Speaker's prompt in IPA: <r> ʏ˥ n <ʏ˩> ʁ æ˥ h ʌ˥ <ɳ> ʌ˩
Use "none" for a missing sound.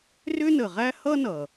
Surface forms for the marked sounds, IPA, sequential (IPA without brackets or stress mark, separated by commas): r, ə˩, n